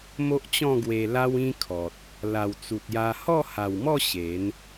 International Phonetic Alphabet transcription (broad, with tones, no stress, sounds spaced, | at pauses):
m o˦ ʔ t͡ɕ ɔ̃˥˧ ɡ w e˧ l a˦ w ĩ˦ kʰ ɔ˨ t̚ | l a˨˩ w t͡s u˨ t̚ j a˧ h ɔ˥˧ h a˨˩ w m ɔ˥˧ ɕ e˨˦ n